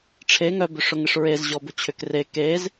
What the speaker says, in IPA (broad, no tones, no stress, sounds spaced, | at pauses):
ʈ͡ʂʰ e ŋ œ b ʏ ʂ ʊ ŋ ɪ ʂ ɹ e z ʑ ɔ b ʊ t͡ɕʰ ʏ k r e k e z